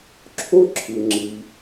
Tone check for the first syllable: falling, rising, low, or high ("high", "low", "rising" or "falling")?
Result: high